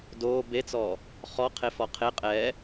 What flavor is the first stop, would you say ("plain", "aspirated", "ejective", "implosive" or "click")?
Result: plain